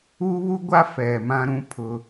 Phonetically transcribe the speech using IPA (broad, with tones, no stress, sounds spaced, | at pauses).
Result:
u˦ β u˦ ɡʷ a˦ f ɛ˨ m ã˦ ɾ ũ˦ pʰ ʊ˦